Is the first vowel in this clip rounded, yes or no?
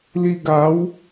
no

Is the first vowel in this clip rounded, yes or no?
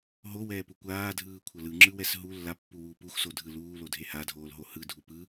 yes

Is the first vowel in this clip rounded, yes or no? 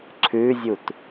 yes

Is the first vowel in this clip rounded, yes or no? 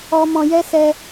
yes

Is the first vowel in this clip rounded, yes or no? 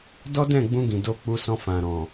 yes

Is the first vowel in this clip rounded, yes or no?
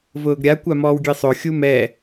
yes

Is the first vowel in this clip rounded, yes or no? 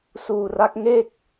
yes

